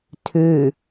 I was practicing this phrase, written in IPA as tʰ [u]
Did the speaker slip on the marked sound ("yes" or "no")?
yes